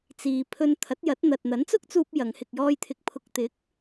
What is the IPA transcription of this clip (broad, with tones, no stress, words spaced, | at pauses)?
t͡siː˨ pʰɵ˧n t̪ʰɐ˨˥t̚jɐ˨˥t̚n̪ɐ˨t̚ n̪ɐ˨˥nt͡sʊ˥k̚t͡suː˧p̚ jɐ˨˧ŋhɪ˧k̚jɔː˥jt̪ʰɪ˧k̚ pʰʊ˨k̚t̪ɪ˨˥k̚